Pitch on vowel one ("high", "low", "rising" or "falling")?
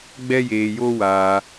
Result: high